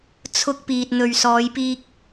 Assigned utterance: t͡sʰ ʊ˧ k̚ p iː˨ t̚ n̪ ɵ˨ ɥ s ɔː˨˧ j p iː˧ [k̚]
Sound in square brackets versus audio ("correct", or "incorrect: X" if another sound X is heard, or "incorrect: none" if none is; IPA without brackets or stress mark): correct